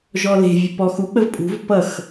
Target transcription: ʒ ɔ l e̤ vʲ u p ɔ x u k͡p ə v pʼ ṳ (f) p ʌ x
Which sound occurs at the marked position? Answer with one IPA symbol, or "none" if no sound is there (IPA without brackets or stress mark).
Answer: v